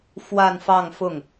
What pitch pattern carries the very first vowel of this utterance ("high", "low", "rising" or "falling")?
falling